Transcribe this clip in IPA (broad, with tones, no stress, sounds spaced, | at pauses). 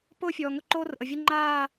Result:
p ʊː˦ fʲ ɔː˨ ŋ ʊ˦ ǃ oː˦ r ʔ ə˨ vʲ ə˦ ŋ͡ǃ aː˦˨